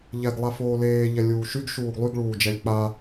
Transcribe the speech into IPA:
ʎ ɛ ɡ lˠ a f oː l eː ʎ ɛ lʲ uː ʃ y ɡ ʃ uː ɡ lˠ y ɡ ɭ uː d͡ʒ ɛ lʲ k͡p a

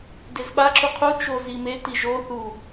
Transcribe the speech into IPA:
d e z ɓ a ǁ u qʰ u t͡ʃ o z i m e t i ʒ o θ u

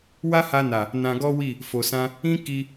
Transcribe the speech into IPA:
w a˦ h a˧ n a˨ | n ã˧ ɡ ɔ˦ w i˦˨ | f o˨ s ã˧ | ĩ˦ k i˧

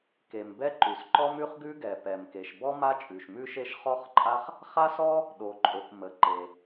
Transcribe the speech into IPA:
k e˩ m b ɛ˥ ǃ ʉ˩ s ǃ ɔ˥ m ʉ˥ χ ɡ ʉ˥ ɡ ɛ˩ p ɛ˩ m k e˩ ʃ b ɔ˥ m a˥ t͡ʃʼ ʉ˩ ʃ m ʉ˥ ʃ e˥ ʃ χ ɔ˥ χ ǃʼ a˥ χ | χ a˥ s ɔ˥ | ɗ o˩ ǃʼ o˩ k m ə˩ ǃ e˩

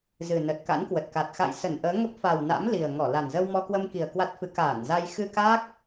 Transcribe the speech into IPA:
z ɨ˨˩ n ə˨˩ t̚ k a̰˧˥ n k w ə˨˩ t̚ k a˨˩ t̚ x a̰˧˨ j s ə˧˩ n ʔ əː˨˦ ŋ ə˦˥ p̚ f a˨˩ w n a̰˧˥ m l i˨˩ ə̯ ŋ ɔ˧˩ l a˨˩ n z ə˧ w m ɔ˧ k w ə˧ m k i˨˩ ə̯ k w a˦˥ t̚ f ɨ˨˦ k aː˧˩ n z a˧ j x ɨ˧ k a˦˥ k̚

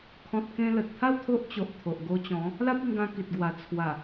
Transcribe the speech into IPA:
kʰ ɔ̃˨ t̚ k ẽ˧ l ə˨ t̚ t̪ʰ a˥˧ w t̪ʰ o˦ ʔ t͡ɕ o˨ ʔ t̪ʰ o˨ ʔ ɡ o˧ t͡ɕ ɔ̃˨˦ | l a˦ p̚ i˧ ŋ ɡ ã˧ k i˨ t̚ ɡ w a˨˩ t͡sʰ w a˨˩

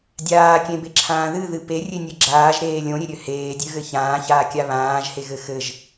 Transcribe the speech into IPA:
dʲ aː kʲ ẽ b e ǁʰ ãː ð ɨ ð ɨ p e rʲ e nʲ ɘ ɡ͡ǁ aː ʒ ɾ eː lʲ õ ɾʲ e ɾʲ ø h eː dʲ ø ɣ ɘ ç ãː ç aː kʲ a β ãː ʒ h e ɣ ɘ x ɘ ʒ

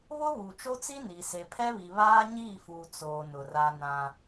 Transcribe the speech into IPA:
β ʊ˦ β u˨ t͡ʃ o˦ t͡s i˦ n i˨ s e˨ pʰ ɛ˦ β i˨ β aː˦ ɲ iː˦˨ f uː˨ t͡s oː˨ n ʊ˨ r a˦ n ã˦

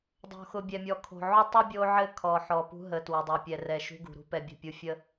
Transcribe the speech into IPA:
dˤ o̤˨ x ʊ˨ bʲ ɛ˨ mʲ ɔ˨ kʰ o̤˨ ʕ ʊ˦ tˤ ʊ˦ bʲ o˦ ʕ ɘ˦ kʰ ɔ˨ ħ ɔ˨ p ṳ˦ ɦ ə˨ t w ɘ˨ dˤ e˨ pʲ ɛ˨ r ɛ˨ ʃ ṳ˦ ɡ ṳ˨ ɾ ṳ˦ p ɛ˨ bʲ ə̤˦˨ pʲ u˦ fʲ ə˦

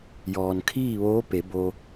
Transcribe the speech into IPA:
j ɔː˩ n kʰ iː˥˨ ʋ oː˧˥ p e˩˧ b o˧

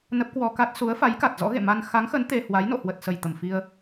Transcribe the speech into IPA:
n ə˦˥ p̚ k w ɔ˧ k a˦˥ t̚ s u˨˦ ə̯ f a˨˦ j k a˨˩ t̚ z ɔ̰˧˥ ɣ ḛ˧˨ m a˧ n x a˨˦ ŋ x ə˨˦ n t̪ e˧ h w a˨˦ j n o̰˧˨ h w ə˨˩ t̚ s ə˧˩ j t̪ ə˧˩ m f i˧ ə̯

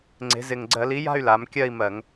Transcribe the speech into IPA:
ŋ͡ǀ e̤˩˧ z ɪ˨˩ ŋ ɡ͡ǀ ɜ˧˩˧ l i˨˥ j a̤˥˧ y̯ l a˩˧ m kʲ ɜ˥˧ i̯ m ɜ˧˩˧ ŋ

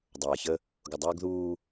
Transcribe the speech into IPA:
dˤ ʌː˨ ç ə˦ | ɡ ʊ˨ dˤ ʊː˦ ɡ ð uː˦

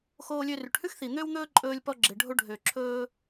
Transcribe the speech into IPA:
x oː˧ lʲ ø˧ r y˩ ʈ h ʉ˥ x θ i˩ n̪ ø˥ w n̪ ɵː˥ ǃʼ ɵː˧ lʲ p ɔ˧ ɡ͡ǁ e˩ ɖʱ o˧ ɖʱ ø˩ ǁʰ ɵː˧

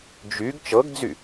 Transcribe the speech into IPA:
d͡ʒ y ɡ t͡ʃ ɤ ɡ d͡z y

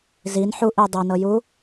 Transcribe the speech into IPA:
z i n ħ u ʔ i dˤ e n ɤ j u

